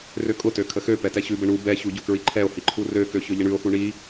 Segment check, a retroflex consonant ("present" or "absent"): present